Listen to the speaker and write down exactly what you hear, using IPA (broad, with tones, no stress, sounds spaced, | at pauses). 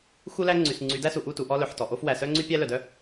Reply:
x u˦ l æ˦ ŋ͡ǀ y˨ s ŋ͡ǀ y˨˦ d æ˦ s u˨ ʔ u˦˨ t u˨ ʔ ɔ˦ l œ˨ ħ t ɔ˨ ʔ o˦ f w æ˨ s œ˦ ŋ͡ǀ y˦ pʲ æ˦ l œ˨ d œ˦